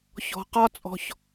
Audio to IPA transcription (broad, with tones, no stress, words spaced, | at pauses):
çɔ̤˨qɒ˦˥t͡sʼɔ̤˨ç